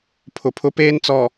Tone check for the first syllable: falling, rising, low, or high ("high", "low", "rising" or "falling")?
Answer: low